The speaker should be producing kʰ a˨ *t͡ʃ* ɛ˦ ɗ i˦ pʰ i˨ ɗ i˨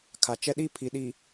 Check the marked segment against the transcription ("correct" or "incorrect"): correct